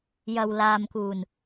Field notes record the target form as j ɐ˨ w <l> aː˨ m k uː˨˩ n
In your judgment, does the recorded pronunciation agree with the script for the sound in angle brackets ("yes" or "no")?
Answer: yes